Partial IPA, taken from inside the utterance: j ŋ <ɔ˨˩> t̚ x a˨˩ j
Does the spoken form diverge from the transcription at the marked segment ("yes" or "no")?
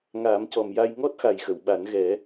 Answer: yes